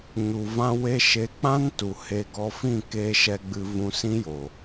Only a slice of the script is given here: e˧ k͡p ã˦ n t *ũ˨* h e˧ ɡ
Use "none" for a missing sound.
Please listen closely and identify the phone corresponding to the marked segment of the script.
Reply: u˨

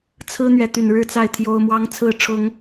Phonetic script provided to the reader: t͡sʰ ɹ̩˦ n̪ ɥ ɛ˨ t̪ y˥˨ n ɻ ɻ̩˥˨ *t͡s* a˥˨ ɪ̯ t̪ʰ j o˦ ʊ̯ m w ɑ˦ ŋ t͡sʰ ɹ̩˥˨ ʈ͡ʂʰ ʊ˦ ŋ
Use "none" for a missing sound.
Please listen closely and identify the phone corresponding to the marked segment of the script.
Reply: t͡s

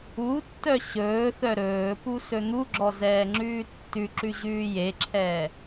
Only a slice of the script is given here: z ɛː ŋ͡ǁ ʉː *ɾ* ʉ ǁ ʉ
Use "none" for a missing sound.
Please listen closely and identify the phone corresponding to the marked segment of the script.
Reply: tː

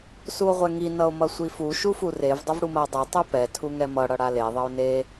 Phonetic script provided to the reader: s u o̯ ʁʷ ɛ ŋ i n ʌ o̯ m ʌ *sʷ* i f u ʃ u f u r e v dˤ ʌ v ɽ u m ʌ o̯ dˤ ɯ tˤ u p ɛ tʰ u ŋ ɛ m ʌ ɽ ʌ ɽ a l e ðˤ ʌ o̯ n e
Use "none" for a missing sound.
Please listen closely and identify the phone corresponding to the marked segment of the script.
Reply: sʷ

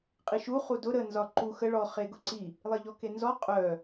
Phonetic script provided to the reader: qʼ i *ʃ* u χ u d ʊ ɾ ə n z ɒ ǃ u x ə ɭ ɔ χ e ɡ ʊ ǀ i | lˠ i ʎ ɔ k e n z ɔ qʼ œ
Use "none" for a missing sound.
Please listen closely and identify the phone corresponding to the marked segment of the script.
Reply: ʃ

